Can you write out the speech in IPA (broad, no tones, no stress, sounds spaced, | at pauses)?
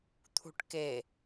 t̪ʰ ṳ ʈ k e